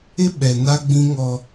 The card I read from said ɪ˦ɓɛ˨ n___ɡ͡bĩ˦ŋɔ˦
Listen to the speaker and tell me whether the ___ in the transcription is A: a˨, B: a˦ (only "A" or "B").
B